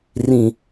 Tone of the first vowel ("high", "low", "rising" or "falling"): low